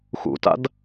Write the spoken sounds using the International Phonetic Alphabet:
x ṵ t a̰ d

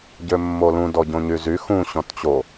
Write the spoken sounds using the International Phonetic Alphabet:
ɟ ø mː o l ũ d ɔ ɟ õ ɲ y z y x ũ ɕ ɔ̃ t t͡ɕ o

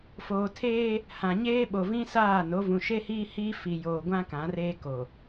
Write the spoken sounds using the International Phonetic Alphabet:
f oː˨ tʰ eː˦ | h ã˨ ɲ eː˦ ɓ o˨ v ĩ˦ s aː˦˨ n o˨˦ v ũ˨ ʃ e˦ h iː˦ h iː˦ f i˨ j oː˨ ɡʷ ã˦ k ã˨˦ r eː˦ k oː˨

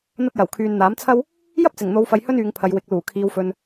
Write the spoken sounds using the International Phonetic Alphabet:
n̪ ɐ˧ t̚ j ɐ˨˩ w kʰ yː˨ n n̪ aː˨˥ m t͡sʰ ɐ˥ w | j ɐ˥ p̚ t͡s ɪ˨˩ ŋ n̪ o˨˧ w f ɐ˨ j h ɵ˥ n yː˨˧ ŋ pʰ ɐ˨˧ j w ɪ˨˥ k̚ l uː˨˩ kʰ iː˨ w f ɵ˨ n

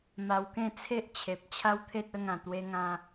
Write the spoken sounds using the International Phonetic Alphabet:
m a˧ w k ẽ˥˧ t͡sʰ e˦ ʔ t͡ɕʰ e˨ p̚ t͡ɕʰ a˦ w t̪ʰ e˦ t̚ ə˧ ŋ ã˨˩ t̪ w e˧ ŋ ã˧

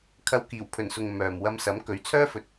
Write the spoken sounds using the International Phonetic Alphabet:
kʰ ɐ˧ w k iː˨˩ w pʰ ɵ˨˩ n s ʊ˨ ŋ m œː˨ m w ɐ˧ m s ɐ˨˥ m k ɵ˨˥ ɥ t͡sʰ œː˥ f ɵ˨ t̚

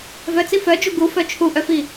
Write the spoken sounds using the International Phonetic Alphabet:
v œ t͡s i f œ d͡ʒ u ɡ u f œ t͡ʃʰ u ʔ œ f i

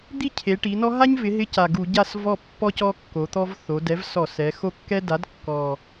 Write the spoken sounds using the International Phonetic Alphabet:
d̪ i˥˨ cʰ e˩˧ ʈ i˩˧ n ɔ˦ ɦ a˦ ɲ v ɪ˩˧ ɦ ɪ˨˥ c a˨˩ ɡ u˧˩˧ ɟ a˥˨ s v ɔ˥˨ pː ɔ˦ c ɔ˦ kː o˩˧ t̪ ɔ˦ v θ o˩˧ d ɛ˨˥ v s ɔ˧˩˧ s ɛ˩˧ x o˦ kː ɛ˦ d a˨˥ d kː ɔ˨˩

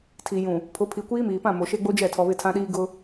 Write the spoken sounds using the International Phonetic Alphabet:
tʰ i˨ j ũ˨ | pʰ ʊ˨˦ pʰ i˨ kʷ iː˦ m iː˨ p ã˦˨ m o˨ ʃ e˦ ɡ͡b o˦ d͡ʒ ɛ˦˨ tʰ ɔ˨ β ɪ˦˨ tʰ ã˦ ɗ iː˦ ɡ ʊ˦

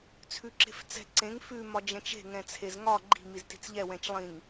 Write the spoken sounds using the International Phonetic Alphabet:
t͡sʰ ʉ ǁ e̤ f t͡s ɛ̤ ǀ ẽ ŋ f ʉ m ɒ d͡ʒ ɛ̃ t͡ʃ e̤ ŋ ɛ̃ t͡sʰ e z ŋ ɒ ɡ͡ǃ i̤ m i z t i̤ t͡s ʎ ɛ w ɛ̃ t͡ʃ lˠ ĩ ŋ

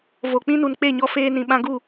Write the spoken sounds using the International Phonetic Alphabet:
v o˨ k͡p ĩ˦ n u˨ n k͡p e˦˨ ɲ ɔ˧ f eː˧ n ĩ˨ ɓ ã˧ ɡ u˦˨

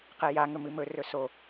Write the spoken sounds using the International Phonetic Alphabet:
q e j a ŋ ɵ m ɨ m ɵ r ɵ s o

